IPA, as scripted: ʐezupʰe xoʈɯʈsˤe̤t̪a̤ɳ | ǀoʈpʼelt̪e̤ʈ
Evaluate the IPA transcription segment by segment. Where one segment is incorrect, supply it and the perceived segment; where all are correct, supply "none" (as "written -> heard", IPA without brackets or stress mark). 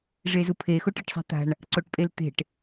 none